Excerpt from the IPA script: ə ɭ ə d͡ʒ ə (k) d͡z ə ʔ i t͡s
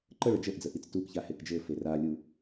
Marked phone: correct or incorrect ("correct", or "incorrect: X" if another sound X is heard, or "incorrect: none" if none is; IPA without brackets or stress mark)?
incorrect: ʔ